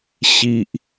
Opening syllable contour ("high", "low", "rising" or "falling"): high